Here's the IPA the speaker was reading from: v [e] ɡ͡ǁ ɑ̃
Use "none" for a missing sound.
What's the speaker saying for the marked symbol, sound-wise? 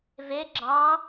e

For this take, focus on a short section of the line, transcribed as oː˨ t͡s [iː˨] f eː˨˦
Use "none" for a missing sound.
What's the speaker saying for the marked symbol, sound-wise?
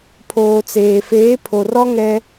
eː˨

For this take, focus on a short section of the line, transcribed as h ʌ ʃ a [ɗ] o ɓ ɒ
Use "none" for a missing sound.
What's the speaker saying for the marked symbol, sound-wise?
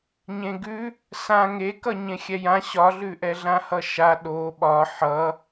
ɗ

